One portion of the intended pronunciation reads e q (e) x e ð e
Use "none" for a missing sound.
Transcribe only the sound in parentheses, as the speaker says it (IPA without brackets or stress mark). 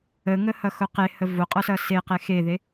e